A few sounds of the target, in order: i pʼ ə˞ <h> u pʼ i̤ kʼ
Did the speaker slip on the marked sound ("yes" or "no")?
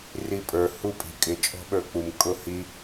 no